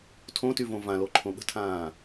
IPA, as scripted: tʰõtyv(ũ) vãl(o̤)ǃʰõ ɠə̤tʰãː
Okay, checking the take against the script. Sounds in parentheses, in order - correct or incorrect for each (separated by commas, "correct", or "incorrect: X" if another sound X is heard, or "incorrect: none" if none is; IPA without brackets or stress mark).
incorrect: õ, incorrect: o